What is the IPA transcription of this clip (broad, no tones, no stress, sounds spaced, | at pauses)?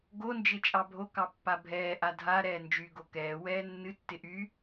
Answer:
ɡ o n d͡ʒ ɪ t͡ʃʼ ɑ bʱ o k ɑ pː a bʱ ɛː ʔ a dʱ a ɾ ɛː n d͡ʒ y ɡ o k ɛː w ɛː nː ɨ tː ɪ ʔ y